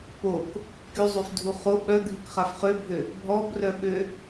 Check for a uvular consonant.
present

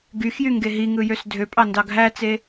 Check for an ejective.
present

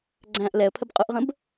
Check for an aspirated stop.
present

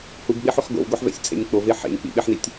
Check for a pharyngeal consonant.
present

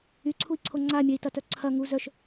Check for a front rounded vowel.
present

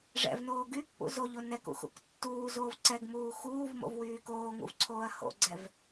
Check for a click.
present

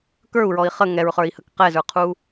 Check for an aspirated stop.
present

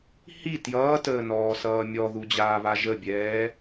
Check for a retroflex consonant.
absent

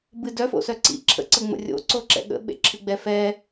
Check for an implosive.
present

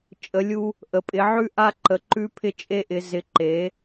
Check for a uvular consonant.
absent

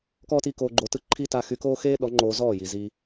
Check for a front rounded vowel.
present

